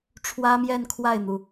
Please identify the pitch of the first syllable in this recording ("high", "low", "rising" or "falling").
high